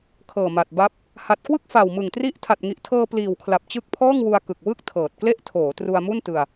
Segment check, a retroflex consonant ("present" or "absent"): absent